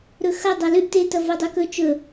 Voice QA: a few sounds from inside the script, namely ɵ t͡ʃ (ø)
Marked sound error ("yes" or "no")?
yes